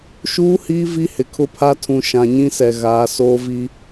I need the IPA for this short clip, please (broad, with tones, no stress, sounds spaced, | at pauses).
ʃ uː˦ h iː˦ v i˦ h ɪ˨ kʰ ʊ˦ pʰ a˦ tʰ ũ˨ ʃ ã˨ ɲ ĩ˦ s ɛ˨ ɣ aː˨˦ s oː˦ v i˦